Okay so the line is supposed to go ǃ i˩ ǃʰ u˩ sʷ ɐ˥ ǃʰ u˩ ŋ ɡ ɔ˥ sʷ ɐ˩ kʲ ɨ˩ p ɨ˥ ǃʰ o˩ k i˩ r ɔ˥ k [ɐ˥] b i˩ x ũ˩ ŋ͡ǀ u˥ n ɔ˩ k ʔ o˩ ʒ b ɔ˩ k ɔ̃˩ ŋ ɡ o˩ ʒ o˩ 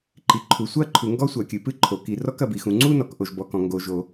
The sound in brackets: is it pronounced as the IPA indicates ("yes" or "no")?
no